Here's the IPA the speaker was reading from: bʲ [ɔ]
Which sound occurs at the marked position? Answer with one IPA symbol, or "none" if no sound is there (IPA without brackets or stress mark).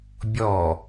ɔ